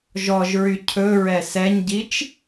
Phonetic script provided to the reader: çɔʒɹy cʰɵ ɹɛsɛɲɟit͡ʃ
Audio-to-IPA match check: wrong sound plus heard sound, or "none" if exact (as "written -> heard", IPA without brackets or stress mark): ç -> ʒ